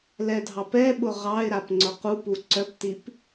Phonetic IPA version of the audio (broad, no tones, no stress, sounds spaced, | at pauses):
l ɛ dʱ ɑ p ɛ ɓ ʊ ʁ ɑ ɪ̯ ɾ a p ŋ͡ǀ ʊ q u p u ǀ œ p t i p